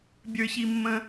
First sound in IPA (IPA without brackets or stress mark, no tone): bʲ